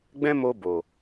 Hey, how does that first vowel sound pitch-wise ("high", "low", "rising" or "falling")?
high